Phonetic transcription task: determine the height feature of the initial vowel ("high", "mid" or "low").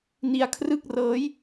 high